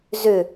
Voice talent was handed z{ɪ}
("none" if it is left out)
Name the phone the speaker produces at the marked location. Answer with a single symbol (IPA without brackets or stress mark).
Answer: ʏ